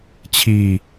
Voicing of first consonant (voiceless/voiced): voiceless